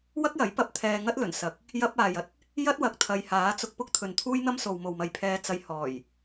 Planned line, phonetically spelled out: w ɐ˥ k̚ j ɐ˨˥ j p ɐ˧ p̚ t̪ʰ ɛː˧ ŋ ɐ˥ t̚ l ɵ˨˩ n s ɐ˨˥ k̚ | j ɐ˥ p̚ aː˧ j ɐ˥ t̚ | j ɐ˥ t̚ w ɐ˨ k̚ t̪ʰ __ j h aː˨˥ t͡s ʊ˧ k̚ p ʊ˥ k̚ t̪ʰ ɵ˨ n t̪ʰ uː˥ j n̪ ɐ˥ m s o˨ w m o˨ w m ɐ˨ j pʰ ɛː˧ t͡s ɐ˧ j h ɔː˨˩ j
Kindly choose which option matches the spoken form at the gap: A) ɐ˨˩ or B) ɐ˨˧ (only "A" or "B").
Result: B